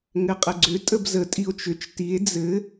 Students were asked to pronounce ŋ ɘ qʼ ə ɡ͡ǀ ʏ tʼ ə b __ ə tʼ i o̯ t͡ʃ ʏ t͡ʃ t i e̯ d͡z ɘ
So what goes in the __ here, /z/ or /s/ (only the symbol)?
z